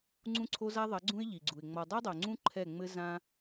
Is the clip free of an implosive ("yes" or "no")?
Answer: yes